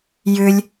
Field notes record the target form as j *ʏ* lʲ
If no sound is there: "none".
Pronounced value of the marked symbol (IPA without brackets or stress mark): ʏ